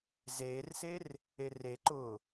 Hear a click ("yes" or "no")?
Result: yes